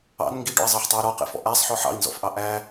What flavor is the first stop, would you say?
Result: plain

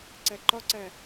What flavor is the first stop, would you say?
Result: click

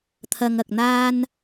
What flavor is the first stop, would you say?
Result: aspirated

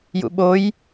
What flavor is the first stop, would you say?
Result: implosive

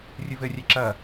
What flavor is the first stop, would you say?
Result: click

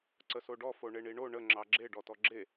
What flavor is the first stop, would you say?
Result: click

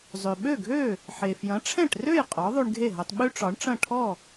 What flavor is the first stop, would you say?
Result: implosive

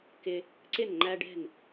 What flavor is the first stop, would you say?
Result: plain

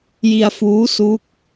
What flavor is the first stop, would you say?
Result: plain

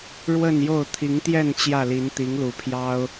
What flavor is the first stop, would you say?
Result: aspirated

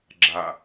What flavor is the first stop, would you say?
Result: click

